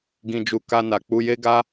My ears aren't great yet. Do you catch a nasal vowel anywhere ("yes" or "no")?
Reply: yes